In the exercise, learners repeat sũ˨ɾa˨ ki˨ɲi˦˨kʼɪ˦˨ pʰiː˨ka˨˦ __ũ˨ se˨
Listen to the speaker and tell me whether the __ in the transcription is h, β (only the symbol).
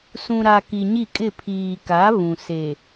β